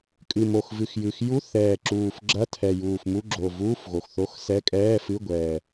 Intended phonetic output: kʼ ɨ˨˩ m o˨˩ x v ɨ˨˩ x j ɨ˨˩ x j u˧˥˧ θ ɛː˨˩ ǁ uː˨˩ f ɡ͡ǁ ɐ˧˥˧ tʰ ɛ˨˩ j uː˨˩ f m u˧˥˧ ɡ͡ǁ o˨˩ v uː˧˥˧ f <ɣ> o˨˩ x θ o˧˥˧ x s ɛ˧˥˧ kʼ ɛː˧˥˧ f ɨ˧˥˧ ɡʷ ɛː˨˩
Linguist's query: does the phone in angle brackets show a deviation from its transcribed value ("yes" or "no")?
no